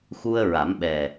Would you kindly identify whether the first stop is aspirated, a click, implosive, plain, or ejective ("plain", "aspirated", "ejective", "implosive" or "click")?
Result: implosive